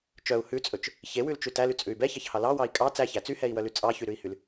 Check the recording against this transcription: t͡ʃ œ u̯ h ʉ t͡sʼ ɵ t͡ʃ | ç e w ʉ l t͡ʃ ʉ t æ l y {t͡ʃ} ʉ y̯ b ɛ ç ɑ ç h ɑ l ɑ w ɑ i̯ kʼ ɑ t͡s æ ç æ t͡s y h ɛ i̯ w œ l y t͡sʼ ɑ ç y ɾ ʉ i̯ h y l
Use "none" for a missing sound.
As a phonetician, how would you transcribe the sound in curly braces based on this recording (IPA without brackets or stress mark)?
t͡sʼ